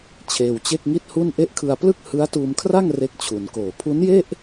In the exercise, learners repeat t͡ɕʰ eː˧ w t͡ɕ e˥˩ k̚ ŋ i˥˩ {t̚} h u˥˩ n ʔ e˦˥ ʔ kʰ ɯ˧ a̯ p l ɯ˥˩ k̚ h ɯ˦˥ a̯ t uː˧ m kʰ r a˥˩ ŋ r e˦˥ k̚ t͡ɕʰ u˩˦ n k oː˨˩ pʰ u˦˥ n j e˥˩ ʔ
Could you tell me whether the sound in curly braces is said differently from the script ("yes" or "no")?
no